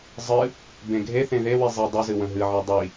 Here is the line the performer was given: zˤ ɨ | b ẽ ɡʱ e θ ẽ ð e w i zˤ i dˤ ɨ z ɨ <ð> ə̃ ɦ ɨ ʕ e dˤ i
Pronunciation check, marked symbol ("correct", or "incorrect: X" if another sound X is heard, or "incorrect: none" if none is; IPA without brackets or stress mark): incorrect: w